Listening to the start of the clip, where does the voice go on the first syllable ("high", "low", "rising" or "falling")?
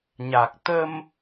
low